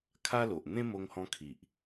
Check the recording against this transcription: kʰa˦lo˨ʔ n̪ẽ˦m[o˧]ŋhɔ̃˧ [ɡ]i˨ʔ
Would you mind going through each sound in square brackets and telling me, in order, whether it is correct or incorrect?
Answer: correct, incorrect

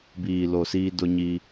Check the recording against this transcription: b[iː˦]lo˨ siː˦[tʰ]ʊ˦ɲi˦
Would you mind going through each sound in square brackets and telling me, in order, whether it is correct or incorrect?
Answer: incorrect, incorrect

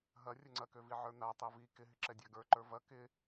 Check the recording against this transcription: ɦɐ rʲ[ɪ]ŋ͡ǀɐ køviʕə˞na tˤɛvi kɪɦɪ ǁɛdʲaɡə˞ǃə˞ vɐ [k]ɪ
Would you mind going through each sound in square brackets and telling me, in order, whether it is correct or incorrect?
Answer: incorrect, correct

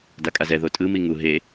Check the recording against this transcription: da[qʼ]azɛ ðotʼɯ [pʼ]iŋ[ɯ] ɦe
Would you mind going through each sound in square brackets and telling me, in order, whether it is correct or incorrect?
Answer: incorrect, incorrect, incorrect

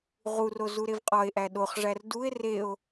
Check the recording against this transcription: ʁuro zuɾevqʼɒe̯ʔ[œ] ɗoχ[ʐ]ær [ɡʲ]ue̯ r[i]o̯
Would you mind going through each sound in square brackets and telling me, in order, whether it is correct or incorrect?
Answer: incorrect, correct, incorrect, incorrect

